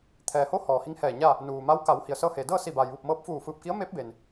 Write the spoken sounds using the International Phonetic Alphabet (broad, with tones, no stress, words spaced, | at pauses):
t̪ʰɛː˩ho˧˥ hɔː˩hi˧˥ŋhɛː˧˩ɲaː˥˨ | nuː˩ma˧˥w ka˩˧w hi˩ə̯sɤː˧heː˩dɤː˥˨ si˧˩baː˩jʋu˧˩p̚ mɤː˧p̚fuː˧˩fɯː˧˩p̚ki˧˥ə̯ meː˧˥p̚beː˩n